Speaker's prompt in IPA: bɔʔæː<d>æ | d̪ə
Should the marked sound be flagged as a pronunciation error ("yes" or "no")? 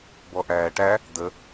yes